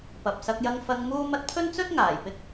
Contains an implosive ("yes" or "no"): no